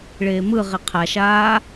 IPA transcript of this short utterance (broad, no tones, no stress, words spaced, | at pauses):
ɭeːmɯʁi qʰaʃaː